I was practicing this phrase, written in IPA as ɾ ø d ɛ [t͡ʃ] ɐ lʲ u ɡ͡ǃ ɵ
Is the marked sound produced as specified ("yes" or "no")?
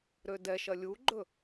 no